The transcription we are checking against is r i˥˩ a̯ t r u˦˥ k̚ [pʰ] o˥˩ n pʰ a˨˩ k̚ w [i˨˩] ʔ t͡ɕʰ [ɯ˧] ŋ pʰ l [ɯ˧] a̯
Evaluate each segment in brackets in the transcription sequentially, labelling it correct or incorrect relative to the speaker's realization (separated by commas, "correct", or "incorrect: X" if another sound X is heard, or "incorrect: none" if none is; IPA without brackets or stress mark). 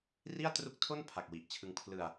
incorrect: tʰ, correct, correct, correct